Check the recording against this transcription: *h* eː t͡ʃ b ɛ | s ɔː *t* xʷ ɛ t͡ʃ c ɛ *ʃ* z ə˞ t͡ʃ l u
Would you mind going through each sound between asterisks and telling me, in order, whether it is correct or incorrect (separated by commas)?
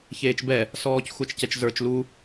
incorrect, incorrect, incorrect